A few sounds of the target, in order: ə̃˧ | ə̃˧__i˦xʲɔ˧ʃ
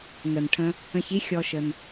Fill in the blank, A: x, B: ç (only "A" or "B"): B